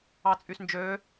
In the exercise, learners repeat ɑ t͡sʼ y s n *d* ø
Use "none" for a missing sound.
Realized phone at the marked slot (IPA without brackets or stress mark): d͡ʒ